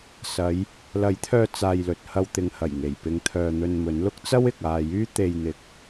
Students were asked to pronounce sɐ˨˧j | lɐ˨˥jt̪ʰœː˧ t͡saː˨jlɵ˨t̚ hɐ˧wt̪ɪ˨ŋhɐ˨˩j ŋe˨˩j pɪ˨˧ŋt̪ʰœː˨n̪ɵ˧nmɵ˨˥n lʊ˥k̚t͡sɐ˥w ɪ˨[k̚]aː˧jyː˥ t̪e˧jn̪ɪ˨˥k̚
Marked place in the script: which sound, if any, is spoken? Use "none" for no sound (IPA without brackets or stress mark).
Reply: k̚